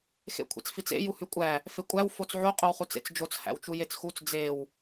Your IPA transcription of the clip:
x ḛ kʷʰ ḛ t͡s f i t͡s ḛ j u h y kʷʼ æ | f e kʷʼ æ w f o t͡s ʕ o qʼ o w χ u t͡s ḛ t͡s d͡ʒ o t͡s h æ̰ w t͡ʃ u j e t͡s x u t͡s d͡z e w

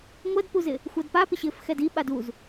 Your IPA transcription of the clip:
ŋʷ ɜ d p u z ɪ | xʷ ɜ d p a p ɪ ɕ ɪː f x ɛ d i ɓ a d u z

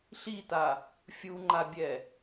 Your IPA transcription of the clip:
ɬ i t a | fʲ u ŋ͡ǃ a bʲ ɛ

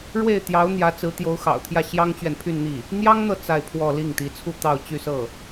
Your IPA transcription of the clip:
ɻ w e˥˩ ɪ̯ t̪ j ɑ˧˥ ʊ̯ n̪ j ä˧˥ t͡s ɹ̩˧˥ t̪ j o˧˥ ʊ̯ x ɑ̰˨˩ ʊ̯ t̪ʰ j ä˥˩ ɕ j ɑ˥ ŋ t͡ɕ ɥ ɛ˨ n pʰ y˥˧ n n̪ i˥˩ | n̪ j ɑ˥ ŋ n̪ ɤ˨ t͡s a˥˧ ɪ̯ pʰ w ɔ˥˧ l i˥˩ ŋ t̪ i˧˥ t͡sʰ u˥˧ t̪ ɑ˥˧ ʊ̯ t͡ɕ y˥˧ s ɤ˥˩

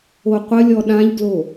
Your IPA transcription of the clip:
o qʷ ə lʲ ɔ ɗ ã ʎ ɡ l o

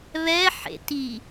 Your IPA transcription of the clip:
β ɛ ħ ḛ t i

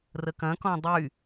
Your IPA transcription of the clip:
r ə k ɐ̃ k ɔ̃ dˤ y

